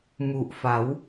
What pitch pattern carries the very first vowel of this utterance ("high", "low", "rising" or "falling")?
low